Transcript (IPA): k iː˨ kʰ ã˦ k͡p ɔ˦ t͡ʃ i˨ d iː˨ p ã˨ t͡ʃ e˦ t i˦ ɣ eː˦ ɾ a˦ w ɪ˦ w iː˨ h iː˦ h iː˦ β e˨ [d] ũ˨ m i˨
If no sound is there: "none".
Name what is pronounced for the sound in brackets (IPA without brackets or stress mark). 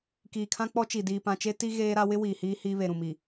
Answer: ɾ